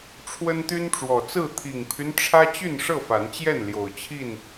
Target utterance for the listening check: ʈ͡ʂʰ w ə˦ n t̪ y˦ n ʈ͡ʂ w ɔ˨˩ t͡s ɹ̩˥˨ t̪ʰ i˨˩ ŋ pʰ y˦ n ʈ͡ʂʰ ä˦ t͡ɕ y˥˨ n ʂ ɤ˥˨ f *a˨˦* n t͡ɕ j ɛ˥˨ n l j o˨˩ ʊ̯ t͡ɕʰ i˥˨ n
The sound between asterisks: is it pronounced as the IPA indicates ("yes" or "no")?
yes